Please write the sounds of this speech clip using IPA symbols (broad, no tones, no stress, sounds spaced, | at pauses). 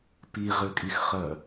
p i ʁ ɘ kʼ i x χ ɐ